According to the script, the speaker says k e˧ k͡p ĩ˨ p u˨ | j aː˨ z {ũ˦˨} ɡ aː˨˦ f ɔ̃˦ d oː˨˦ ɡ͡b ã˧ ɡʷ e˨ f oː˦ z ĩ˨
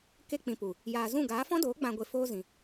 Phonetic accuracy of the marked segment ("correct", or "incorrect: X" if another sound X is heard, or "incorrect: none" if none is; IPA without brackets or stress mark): correct